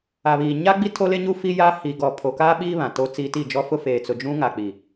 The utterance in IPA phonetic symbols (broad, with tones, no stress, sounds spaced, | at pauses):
a˨ β iː˨ ɲ a˦ ɡ͡b i˦ tʰ o˦ l e˦ ɲ uː˦ f i˦ j aː˦ h iː˨ ɡ ɔ˨ pʰ o˨ k aː˦ ɓ iː˦ β ã˨ t oː˦ t͡s iː˦ t i˦˨ d͡ʒ ɔ˦ f ʊ˦ f eː˨ t͡s ʊ˨ d͡ʒ ũ˦ ŋ a˨ k͡p i˨